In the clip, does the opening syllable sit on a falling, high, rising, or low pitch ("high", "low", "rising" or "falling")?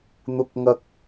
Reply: high